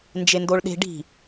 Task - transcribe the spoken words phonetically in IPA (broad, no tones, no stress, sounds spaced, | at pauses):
n d͡ʒ e n d o ɭ ɗ e̤ ɖ i̤